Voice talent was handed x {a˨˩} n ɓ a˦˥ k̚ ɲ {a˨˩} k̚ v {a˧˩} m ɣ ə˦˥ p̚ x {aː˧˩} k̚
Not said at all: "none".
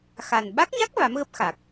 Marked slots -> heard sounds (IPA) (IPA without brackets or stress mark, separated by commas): a˨˩, a˦˥, a˨˦, aː˨˩